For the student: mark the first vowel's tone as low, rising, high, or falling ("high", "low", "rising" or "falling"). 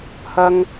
high